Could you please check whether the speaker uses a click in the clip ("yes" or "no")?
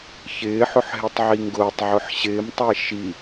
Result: no